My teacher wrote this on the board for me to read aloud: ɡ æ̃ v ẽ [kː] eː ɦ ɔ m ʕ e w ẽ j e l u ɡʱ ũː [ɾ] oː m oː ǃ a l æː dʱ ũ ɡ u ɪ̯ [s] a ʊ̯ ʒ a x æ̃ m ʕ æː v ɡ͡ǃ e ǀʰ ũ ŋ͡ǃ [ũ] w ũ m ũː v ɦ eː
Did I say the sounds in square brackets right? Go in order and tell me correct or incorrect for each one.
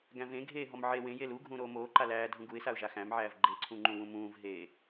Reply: incorrect: ɡʱ, correct, correct, correct

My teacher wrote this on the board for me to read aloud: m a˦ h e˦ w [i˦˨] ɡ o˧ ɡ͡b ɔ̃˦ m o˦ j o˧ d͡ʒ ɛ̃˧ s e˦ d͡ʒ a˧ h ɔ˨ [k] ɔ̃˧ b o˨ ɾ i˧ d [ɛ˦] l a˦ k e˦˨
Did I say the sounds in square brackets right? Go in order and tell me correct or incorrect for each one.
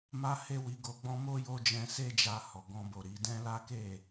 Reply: incorrect: i˧, incorrect: ɡ, incorrect: ɛ̃˦

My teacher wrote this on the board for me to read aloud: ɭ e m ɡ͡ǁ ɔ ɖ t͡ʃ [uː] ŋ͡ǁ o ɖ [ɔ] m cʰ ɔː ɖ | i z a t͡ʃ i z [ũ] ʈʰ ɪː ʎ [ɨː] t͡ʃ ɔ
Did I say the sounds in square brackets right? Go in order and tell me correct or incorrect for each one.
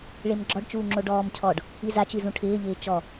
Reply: correct, incorrect: ɔː, correct, incorrect: ɪː

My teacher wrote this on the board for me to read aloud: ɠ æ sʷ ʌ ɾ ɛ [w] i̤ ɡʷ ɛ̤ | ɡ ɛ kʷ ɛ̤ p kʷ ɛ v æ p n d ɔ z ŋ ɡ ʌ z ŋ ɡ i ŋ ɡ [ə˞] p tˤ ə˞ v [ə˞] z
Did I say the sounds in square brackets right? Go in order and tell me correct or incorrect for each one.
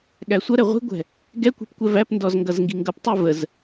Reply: incorrect: ʁʷ, incorrect: ʌ, incorrect: ə

